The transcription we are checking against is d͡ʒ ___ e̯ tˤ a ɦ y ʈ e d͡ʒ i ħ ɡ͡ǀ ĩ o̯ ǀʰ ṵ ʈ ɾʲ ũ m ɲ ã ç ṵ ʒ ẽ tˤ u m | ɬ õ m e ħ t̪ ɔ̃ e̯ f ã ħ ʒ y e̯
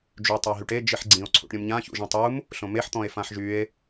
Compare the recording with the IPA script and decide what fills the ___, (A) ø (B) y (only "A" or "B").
B